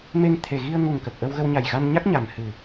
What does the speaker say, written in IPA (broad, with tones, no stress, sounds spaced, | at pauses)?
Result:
m e˧ ŋ t̪ʰ e˨˩ ɣ i˧ ə̯ ŋ u˨˩ ŋ k ə˨˩ k̚ ʔ ə˧ w ɣ ə˧ w ɲ a˨˩ j ɣ a˧ n ɲ a˦˥ k̚ ɲ a˨˩ m h ɨ˨˩